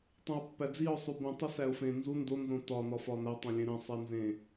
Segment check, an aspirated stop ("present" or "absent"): absent